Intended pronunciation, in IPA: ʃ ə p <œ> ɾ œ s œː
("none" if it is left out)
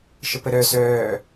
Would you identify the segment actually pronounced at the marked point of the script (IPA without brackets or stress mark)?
ə